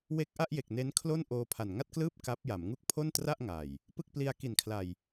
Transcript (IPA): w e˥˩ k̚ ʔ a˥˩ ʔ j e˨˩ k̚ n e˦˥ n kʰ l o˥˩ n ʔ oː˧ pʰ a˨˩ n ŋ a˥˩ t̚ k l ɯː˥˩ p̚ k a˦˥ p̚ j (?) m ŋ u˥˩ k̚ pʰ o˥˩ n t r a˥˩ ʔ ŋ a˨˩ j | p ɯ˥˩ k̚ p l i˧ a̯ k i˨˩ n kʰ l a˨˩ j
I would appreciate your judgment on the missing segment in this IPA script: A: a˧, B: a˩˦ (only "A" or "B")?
B